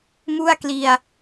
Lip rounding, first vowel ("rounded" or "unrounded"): rounded